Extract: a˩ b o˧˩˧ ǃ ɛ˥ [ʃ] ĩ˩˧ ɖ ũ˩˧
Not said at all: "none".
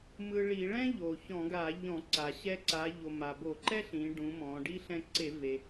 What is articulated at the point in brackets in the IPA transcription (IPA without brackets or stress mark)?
ɬ